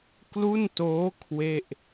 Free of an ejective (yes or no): yes